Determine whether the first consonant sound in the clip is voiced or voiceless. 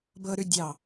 voiced